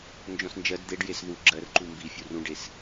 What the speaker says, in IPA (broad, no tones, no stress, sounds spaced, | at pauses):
n d͡ʒ ɔ̃ s n d͡ʒ ɜ d d̪ e ɖ j e s ð u ɡ͡ǁ ɜ r ǃ u m b i fʲ u r ũ ɖ e s